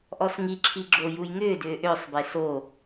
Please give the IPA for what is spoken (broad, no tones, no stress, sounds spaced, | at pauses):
ʔ ɔ s ŋ i ǁʰ i ɡ͡ǁ o j u j ŋ ʏː d ʏː ʔ ʏː sˤ b e s o